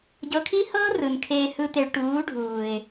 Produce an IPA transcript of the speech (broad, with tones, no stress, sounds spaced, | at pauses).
ɟ ɤ˨ kʰ i˦ h ɤː˦ r ɯ˨ n kʰ eː˦ h ɯ˦ t̪ e˨ ɭ ʈ uː˨˦ ɖʱ uː˨ ɪ̯